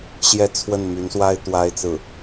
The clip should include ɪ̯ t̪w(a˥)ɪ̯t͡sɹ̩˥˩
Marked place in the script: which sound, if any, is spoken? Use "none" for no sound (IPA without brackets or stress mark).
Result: a˥